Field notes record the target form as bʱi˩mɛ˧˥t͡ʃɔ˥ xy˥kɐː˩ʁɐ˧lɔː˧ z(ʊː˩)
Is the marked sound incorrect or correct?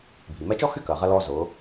incorrect: ʊː˩˧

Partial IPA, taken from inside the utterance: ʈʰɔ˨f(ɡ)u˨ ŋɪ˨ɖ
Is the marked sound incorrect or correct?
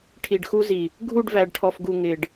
correct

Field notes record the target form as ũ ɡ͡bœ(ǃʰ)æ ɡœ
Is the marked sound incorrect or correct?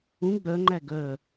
incorrect: ŋ͡ǃ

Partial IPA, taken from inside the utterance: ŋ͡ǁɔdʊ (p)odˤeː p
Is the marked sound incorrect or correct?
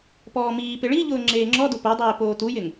correct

